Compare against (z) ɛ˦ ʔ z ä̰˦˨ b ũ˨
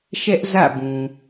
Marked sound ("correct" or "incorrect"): incorrect